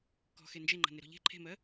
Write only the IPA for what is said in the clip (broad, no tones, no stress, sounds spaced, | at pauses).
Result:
k ɔ̤ x e n d͡ʒ e ŋ͡ǃ a̤ n e ɾ ɔ̤ ʎ e̤ ǃʰ e̤ m ɜ